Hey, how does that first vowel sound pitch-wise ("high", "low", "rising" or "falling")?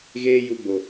high